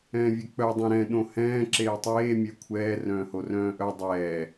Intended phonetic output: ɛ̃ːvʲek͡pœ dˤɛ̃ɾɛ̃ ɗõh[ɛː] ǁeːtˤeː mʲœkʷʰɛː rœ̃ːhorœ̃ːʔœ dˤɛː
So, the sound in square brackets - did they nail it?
no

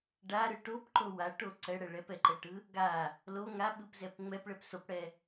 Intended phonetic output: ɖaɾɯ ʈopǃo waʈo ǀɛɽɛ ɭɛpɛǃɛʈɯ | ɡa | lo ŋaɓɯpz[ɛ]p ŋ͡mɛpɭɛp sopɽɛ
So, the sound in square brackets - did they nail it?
yes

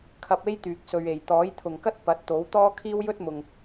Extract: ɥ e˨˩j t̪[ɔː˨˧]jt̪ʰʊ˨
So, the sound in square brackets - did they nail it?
no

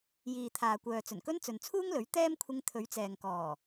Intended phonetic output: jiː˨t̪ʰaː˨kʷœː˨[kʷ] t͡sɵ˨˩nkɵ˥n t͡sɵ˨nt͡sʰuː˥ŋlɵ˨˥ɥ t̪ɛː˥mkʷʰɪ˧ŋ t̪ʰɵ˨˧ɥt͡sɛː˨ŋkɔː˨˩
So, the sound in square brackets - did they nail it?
no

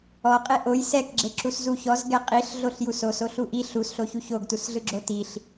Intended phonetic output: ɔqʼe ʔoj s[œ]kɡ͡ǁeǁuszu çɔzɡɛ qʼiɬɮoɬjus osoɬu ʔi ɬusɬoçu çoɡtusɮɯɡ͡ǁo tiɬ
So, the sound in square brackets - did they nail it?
no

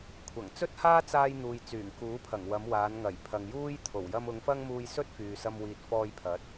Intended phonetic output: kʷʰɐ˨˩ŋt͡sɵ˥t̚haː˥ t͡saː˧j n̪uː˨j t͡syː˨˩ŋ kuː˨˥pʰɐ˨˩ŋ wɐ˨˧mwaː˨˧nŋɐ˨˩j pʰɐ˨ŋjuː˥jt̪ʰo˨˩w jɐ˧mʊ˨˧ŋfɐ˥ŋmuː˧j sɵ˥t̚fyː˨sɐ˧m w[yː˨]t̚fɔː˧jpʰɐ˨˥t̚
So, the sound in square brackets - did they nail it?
no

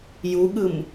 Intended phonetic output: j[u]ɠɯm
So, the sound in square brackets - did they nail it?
yes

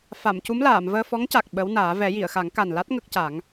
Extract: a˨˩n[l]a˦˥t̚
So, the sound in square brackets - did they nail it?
yes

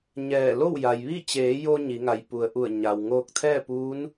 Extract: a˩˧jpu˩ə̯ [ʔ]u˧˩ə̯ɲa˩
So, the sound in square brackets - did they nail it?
yes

